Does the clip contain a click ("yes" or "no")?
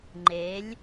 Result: yes